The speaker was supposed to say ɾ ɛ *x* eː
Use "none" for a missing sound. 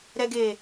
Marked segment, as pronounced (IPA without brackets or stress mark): ɡ